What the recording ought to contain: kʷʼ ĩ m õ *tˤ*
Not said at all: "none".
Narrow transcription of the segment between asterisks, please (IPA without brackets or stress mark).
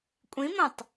tˤ